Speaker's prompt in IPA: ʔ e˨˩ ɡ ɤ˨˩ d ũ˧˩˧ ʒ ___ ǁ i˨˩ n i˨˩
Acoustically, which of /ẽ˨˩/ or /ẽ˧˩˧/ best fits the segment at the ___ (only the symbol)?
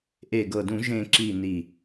ẽ˨˩